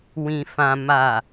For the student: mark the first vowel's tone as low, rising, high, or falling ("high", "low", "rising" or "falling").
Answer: low